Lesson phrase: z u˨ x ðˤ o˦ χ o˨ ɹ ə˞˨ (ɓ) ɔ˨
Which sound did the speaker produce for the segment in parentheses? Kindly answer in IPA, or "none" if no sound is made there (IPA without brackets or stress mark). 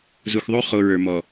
m